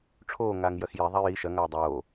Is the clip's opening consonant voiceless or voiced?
voiceless